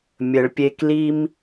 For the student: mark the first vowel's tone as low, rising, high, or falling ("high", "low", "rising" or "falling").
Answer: low